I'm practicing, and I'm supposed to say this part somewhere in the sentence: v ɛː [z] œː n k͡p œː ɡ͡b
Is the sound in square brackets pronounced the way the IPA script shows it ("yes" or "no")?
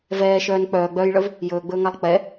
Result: no